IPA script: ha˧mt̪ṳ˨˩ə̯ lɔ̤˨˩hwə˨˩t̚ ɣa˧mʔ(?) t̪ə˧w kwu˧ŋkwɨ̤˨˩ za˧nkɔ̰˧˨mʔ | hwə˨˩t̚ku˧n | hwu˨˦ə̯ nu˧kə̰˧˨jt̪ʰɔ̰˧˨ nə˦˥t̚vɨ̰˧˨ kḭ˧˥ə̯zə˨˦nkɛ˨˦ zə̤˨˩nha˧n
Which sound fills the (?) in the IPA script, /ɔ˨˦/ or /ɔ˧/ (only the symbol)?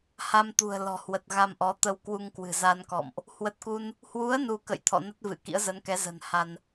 ɔ˨˦